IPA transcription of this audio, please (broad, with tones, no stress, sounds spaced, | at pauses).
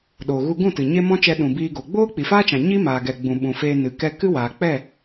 ɗ o˨ ɣ u˧ ɡ ũ˦˨ t ɨ˨ ɲ e˦ m ɔ̃˦ t͡ʃ ɛ˧ ɗ ũ˨ b iː˧ ɡ o˨ ɡ͡b oː˦ k͡p i˨ f aː˦ t͡ʃ ã˨ ɲ i˦ m aː˨ ɡ ɛ˨ ɡ͡b ũ˨ ɓ ũ˨ f eː˧ n ɨ˨ k ɛ˧ k ɨ˦ w aː˨ k͡p ɛ˦˨